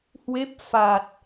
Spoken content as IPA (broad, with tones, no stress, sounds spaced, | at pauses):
h w e˦˥ p̚ f a˨˩ t̚